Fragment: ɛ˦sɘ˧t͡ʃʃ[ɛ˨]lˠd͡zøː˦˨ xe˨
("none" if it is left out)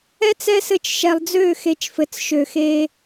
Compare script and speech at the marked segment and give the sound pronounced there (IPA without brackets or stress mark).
ɛ˨